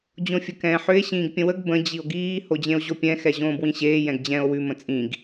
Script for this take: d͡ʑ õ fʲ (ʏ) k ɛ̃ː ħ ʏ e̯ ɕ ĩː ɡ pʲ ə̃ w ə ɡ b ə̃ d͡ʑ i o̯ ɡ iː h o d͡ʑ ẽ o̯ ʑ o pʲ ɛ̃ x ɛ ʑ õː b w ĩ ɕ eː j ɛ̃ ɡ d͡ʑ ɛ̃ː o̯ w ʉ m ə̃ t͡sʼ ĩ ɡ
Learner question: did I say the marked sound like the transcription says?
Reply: no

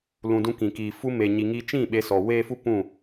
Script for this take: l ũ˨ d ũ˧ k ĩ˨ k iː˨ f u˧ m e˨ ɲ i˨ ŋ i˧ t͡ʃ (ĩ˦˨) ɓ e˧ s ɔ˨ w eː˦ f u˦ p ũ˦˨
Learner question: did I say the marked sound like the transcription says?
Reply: yes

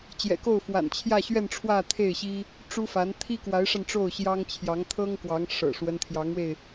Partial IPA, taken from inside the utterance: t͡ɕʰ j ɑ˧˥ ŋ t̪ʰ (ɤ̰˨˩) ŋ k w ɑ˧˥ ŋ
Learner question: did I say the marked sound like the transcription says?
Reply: no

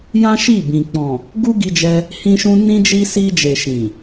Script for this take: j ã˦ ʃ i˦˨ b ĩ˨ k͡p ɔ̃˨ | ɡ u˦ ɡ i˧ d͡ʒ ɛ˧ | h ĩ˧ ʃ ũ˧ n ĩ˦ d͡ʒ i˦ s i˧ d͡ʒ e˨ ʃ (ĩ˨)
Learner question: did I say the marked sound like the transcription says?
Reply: yes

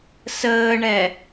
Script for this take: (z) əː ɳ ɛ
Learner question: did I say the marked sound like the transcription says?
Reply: no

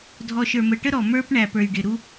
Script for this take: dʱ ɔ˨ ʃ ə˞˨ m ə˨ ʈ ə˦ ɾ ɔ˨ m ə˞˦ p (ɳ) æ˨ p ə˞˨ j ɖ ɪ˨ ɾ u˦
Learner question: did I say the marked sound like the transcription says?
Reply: yes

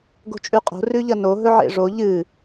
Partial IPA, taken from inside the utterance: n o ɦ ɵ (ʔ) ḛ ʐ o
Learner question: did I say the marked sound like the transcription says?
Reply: no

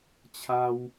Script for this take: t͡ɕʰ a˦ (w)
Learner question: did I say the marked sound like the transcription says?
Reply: yes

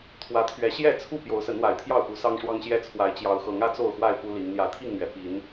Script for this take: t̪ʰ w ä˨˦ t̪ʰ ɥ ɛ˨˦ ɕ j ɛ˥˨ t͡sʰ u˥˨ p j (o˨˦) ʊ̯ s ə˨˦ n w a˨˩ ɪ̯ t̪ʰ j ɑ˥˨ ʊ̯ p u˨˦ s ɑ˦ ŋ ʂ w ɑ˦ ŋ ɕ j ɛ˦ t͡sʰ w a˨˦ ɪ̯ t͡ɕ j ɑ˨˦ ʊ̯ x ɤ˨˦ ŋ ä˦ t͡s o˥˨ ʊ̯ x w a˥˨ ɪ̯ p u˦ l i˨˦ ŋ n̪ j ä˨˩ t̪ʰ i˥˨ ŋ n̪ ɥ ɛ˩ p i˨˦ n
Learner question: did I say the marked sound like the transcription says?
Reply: yes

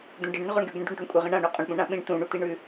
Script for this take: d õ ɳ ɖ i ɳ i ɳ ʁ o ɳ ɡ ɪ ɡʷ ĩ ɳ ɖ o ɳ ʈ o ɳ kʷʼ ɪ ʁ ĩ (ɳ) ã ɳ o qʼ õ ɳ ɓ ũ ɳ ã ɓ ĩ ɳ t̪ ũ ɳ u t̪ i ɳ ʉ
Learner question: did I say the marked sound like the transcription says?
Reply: yes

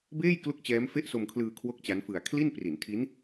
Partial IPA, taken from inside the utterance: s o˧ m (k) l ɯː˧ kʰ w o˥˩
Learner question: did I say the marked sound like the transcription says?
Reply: no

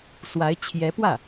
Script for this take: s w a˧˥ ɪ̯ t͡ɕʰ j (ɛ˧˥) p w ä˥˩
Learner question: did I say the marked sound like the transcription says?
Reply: yes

